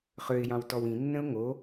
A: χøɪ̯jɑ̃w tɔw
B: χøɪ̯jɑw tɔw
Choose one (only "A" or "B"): A